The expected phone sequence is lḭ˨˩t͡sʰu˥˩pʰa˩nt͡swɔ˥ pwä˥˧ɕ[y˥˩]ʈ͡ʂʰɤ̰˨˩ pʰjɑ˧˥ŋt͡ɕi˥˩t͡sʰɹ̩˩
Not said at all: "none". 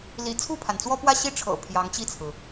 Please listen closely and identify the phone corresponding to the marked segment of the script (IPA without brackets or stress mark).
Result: i˥˩